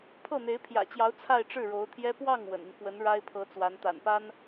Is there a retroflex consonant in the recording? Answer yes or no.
yes